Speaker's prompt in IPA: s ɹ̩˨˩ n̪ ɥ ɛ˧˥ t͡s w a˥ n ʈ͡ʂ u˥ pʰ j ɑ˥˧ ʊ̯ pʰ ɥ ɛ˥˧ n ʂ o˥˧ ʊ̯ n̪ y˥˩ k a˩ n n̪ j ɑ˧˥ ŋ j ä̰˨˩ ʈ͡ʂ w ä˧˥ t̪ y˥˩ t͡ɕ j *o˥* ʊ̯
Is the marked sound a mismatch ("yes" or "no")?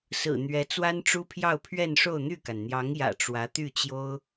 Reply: no